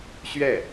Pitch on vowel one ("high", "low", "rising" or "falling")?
falling